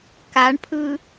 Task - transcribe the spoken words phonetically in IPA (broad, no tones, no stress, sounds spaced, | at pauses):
k a ɳ pʰ ɯ